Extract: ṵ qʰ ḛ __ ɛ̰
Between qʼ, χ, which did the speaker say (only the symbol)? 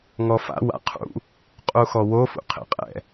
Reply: qʼ